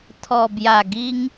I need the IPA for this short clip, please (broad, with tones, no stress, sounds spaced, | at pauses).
t̪ʰ ɔ˨˩ b j a˨˩ ɡ i˧ ŋ